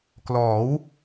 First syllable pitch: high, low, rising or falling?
rising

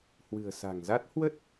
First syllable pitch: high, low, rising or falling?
low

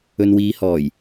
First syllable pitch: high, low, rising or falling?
low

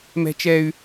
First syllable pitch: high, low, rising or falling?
high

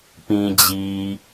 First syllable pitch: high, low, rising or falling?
low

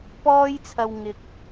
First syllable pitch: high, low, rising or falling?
high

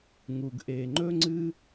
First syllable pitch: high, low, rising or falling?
low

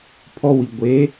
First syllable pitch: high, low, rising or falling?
high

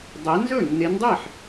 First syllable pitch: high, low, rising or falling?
rising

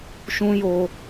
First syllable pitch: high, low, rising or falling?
high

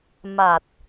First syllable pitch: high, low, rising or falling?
low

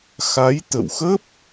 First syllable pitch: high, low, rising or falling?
rising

